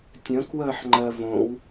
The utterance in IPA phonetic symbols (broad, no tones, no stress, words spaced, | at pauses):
tʲə̃kwəːħŋ͡ǃɜ võw